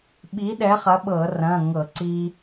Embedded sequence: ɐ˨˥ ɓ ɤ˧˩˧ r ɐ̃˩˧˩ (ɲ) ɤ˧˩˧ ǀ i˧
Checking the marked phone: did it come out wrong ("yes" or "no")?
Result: yes